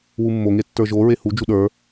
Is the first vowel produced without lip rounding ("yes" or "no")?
no